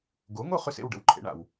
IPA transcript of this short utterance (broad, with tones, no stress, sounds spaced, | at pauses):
ɡ o˩˥ ŋ o˥˩ χ ø˥ s ḛ˥˩ w ɖ ə̰˩˥ w ǃʰ ḛ˩˥ ɳ a̰˩ w